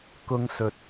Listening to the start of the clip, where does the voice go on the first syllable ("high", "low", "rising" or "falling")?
high